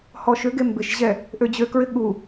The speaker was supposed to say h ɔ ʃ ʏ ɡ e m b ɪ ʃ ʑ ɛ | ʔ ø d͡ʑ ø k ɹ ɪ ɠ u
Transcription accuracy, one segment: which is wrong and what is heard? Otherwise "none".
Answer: none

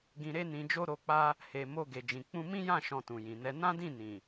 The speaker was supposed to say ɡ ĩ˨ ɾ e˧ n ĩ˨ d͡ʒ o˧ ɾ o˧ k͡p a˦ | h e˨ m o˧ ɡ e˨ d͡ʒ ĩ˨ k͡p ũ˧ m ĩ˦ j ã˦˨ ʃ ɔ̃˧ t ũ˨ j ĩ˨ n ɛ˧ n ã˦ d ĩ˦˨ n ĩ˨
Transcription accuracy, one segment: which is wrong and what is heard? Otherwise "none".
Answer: none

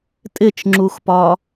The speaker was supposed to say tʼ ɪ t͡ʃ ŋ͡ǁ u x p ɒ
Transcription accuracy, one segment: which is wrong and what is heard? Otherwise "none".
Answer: none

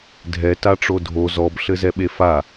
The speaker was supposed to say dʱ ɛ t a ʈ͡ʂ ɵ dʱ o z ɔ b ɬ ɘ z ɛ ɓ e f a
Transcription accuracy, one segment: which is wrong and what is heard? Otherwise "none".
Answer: ɵ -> o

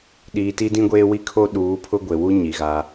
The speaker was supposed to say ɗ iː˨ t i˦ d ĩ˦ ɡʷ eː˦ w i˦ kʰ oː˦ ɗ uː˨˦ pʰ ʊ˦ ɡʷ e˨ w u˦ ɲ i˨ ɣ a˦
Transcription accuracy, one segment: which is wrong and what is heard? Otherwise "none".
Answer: none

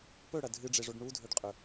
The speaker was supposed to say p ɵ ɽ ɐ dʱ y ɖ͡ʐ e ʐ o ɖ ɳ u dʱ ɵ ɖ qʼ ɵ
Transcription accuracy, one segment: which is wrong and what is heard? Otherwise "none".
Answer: y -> ɨ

